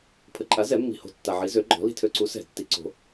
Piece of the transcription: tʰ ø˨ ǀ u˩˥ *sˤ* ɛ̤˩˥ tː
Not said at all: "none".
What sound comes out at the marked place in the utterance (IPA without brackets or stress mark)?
s